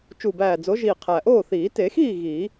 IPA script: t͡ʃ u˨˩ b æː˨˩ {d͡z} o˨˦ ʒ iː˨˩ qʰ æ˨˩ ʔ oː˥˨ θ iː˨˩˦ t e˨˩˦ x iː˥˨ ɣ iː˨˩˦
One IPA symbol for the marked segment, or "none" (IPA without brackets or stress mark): d͡z